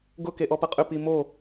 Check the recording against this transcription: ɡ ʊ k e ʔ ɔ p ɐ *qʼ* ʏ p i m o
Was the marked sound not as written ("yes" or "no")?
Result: no